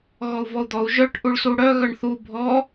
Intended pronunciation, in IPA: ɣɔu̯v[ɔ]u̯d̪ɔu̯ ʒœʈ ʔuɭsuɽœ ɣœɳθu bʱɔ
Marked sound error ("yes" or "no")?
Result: no